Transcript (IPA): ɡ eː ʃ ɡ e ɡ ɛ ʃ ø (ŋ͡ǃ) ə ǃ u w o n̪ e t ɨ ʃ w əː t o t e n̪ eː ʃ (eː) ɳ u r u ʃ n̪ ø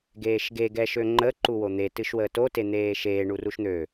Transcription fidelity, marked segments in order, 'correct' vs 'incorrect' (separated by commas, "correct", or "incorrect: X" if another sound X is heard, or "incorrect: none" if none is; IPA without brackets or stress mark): correct, correct